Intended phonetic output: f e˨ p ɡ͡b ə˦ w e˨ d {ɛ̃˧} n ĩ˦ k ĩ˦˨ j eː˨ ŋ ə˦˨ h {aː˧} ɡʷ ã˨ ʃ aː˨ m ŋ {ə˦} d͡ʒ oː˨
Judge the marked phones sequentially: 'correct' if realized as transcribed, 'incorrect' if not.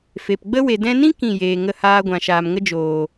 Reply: correct, incorrect: aː˦, correct

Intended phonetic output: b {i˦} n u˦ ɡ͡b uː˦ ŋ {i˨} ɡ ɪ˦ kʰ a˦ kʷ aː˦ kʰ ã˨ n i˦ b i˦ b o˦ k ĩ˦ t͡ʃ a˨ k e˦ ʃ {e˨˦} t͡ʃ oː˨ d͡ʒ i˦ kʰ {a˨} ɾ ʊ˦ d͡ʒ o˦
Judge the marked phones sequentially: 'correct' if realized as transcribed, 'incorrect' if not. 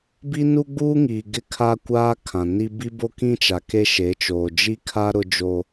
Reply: correct, incorrect: iː˨, correct, incorrect: a˦

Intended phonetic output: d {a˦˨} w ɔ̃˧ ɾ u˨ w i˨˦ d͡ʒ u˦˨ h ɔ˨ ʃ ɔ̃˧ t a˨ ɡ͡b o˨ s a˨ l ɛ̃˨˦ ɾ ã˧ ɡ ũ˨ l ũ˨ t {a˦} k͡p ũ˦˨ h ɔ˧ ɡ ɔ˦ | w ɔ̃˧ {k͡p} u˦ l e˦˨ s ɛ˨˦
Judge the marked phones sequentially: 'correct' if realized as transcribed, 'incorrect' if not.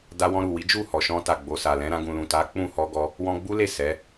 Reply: incorrect: a˧, incorrect: a˨˦, incorrect: ɡ͡b

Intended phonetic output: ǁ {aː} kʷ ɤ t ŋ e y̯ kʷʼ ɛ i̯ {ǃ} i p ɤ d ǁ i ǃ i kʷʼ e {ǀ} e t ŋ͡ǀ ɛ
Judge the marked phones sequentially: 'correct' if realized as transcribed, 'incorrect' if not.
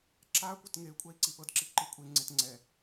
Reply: correct, incorrect: ǀ, incorrect: ŋ͡ǀ

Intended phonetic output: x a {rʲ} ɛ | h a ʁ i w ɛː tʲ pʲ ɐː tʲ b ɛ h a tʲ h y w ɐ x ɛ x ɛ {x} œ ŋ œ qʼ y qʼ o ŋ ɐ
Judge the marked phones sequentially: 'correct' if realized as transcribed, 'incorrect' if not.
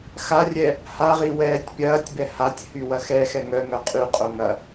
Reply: correct, incorrect: ŋ

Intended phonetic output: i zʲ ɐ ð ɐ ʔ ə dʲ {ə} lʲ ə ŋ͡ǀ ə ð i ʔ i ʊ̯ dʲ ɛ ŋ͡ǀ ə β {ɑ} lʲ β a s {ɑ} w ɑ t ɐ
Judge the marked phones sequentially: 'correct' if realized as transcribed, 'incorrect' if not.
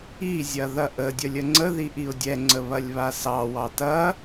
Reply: correct, incorrect: ɐ, correct

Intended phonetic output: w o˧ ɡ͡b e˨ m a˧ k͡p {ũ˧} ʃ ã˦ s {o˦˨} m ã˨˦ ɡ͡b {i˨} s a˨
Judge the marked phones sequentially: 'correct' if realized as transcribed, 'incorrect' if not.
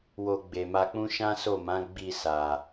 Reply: incorrect: ũ˦, correct, incorrect: i˦˨

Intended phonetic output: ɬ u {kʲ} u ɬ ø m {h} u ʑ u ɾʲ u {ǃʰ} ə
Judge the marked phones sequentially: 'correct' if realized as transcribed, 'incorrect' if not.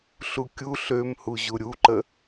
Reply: correct, correct, incorrect: ǃ

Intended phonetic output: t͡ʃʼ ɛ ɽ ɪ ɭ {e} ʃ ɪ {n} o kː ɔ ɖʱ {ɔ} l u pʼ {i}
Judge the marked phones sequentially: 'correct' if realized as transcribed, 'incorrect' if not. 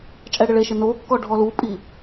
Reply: correct, correct, correct, correct

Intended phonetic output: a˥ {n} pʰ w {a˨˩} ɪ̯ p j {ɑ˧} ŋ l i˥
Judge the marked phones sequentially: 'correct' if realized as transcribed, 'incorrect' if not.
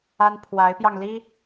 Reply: correct, incorrect: a˧˥, correct

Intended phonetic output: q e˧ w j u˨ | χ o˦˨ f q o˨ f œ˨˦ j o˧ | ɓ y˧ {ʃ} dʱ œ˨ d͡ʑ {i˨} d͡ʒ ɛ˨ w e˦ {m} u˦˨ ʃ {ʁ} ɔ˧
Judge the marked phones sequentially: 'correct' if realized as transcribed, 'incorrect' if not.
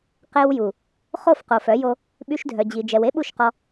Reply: correct, correct, incorrect: ɓ, incorrect: q

